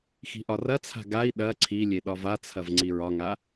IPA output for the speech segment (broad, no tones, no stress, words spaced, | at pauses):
xi̤ʔɒrɐt͡sʰa̤ ɡai̯ ɗɐ ǀʰilʲe ɗɒvat͡sʰɐv ŋ͡ǀiɹɒŋa